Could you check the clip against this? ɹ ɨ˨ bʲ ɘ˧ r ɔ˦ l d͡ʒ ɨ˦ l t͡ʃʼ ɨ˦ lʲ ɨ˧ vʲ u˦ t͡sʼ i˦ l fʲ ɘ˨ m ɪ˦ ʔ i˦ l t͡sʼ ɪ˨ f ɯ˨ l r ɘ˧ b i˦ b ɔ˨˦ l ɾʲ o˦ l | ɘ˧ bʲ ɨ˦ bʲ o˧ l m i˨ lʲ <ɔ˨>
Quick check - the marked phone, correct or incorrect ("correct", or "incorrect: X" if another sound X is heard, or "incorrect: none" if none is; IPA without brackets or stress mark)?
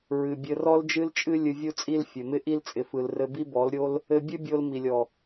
correct